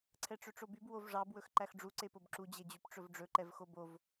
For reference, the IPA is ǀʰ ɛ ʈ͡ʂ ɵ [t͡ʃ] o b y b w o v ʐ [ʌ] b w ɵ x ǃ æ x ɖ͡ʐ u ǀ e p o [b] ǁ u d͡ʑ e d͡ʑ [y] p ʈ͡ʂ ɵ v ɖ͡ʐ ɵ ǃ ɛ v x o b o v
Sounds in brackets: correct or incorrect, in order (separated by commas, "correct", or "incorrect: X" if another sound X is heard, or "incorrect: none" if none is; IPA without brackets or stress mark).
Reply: incorrect: ʈ͡ʂ, incorrect: ɑ, correct, correct